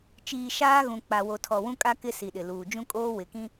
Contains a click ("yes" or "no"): no